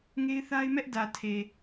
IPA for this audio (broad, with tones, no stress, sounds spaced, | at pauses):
ŋ e˦ ɪ̯ θ a˦ ɪ̯ m ɛ˦ ʔ d ä˨ tʰ e˨